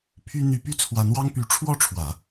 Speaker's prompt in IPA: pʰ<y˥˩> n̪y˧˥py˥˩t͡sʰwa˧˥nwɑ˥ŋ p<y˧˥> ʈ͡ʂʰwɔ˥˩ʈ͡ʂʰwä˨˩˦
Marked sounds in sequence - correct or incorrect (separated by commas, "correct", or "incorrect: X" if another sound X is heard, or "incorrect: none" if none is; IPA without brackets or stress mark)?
incorrect: y˥, correct